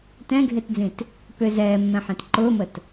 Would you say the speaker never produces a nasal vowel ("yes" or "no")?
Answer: no